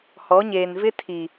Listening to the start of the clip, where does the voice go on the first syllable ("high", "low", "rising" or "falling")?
rising